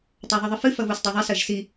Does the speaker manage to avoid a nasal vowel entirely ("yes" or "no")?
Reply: yes